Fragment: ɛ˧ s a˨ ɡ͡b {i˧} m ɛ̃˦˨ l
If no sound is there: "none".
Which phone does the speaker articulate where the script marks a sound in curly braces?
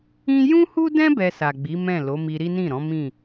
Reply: i˨˦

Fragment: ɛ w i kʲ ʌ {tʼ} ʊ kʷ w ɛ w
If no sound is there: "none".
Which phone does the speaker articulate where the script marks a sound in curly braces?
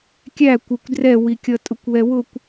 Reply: tʼ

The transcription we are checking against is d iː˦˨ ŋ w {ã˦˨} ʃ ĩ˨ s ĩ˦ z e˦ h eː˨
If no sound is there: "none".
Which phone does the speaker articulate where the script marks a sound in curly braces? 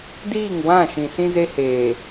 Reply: ã˦˨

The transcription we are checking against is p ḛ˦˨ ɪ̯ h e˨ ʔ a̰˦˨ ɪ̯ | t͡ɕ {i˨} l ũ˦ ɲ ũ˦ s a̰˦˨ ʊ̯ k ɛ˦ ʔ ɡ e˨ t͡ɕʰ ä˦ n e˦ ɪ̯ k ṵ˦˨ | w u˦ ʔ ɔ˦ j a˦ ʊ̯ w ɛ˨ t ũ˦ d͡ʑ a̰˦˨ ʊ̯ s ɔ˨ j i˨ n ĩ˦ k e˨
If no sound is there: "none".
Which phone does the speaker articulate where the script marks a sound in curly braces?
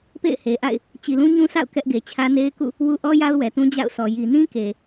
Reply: i˨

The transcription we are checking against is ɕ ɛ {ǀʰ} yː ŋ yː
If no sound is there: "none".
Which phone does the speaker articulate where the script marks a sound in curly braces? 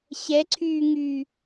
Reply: ǀʰ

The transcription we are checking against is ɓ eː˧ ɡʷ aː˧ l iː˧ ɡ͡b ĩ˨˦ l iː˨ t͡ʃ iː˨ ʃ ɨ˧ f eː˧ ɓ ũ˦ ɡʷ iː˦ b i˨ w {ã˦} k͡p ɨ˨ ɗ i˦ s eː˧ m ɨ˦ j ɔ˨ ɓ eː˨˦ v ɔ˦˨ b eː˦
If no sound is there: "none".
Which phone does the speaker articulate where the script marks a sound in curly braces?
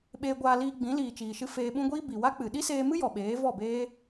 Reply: a˦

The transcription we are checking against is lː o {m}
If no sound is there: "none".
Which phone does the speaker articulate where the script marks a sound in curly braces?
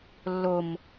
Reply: m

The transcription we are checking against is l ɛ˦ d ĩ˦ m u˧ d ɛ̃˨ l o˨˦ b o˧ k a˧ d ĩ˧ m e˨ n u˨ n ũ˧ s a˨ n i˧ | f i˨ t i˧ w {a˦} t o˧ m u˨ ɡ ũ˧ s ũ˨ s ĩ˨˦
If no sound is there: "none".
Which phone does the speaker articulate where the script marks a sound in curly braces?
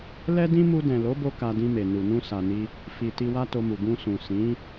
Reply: a˦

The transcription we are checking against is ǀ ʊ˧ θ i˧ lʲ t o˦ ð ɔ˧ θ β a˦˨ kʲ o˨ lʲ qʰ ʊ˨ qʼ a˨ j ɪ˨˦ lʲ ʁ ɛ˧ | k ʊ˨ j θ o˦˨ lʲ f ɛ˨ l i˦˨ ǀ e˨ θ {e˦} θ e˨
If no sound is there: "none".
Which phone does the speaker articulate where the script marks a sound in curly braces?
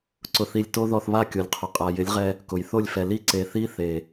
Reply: i˦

